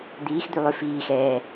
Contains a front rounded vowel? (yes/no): yes